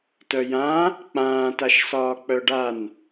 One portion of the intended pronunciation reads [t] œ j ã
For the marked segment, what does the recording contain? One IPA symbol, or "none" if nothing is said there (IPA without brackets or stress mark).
t